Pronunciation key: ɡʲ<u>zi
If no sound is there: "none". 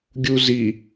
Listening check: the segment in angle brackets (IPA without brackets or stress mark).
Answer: u